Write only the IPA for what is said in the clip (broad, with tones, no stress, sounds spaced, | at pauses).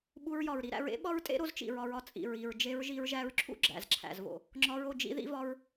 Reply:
ɓ u˧ ɹ j ɒ˨ ɹ ɾ i˧ ɾ æ̰˧ ɹ ḛ˦ ɓ ɒ˦ ɹ tʼ ḛ˦ ɾ o˧ z t͡ʃ ḭ˨ ɹ ɒ˧ ɹ ɒ˨ t͡sʼ ḭ˨ ɹ i˨ ɹ d͡ʒ e˧ ɹ ʒ i˧ ɹ ʒ æ˧ ɹ ǁʰ ṵ˦ ɡ͡ǁ æ̰˨ z ǁʰ æ̰˨ z v o̰˨ | ŋ͡ǁ ɒ˧ ɹ o˦˨ d͡ʒ ḭ˧ ð ḭ˦ v ɒ˦ ɹ